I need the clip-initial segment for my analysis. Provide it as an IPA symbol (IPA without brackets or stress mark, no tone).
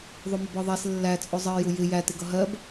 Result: ðˤ